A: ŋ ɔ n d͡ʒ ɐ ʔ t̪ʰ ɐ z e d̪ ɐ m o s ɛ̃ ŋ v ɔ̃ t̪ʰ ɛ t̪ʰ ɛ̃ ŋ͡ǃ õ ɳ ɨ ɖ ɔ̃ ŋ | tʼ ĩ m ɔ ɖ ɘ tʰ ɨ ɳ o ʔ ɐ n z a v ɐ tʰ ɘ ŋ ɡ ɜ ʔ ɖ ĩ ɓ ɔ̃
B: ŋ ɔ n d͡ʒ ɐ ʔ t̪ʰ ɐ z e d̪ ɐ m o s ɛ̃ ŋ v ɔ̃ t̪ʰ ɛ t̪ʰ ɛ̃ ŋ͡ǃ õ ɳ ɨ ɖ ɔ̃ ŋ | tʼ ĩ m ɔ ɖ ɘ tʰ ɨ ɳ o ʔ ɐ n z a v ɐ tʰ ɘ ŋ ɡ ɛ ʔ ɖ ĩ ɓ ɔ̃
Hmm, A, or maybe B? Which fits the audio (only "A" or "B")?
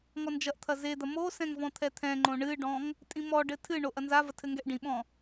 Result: B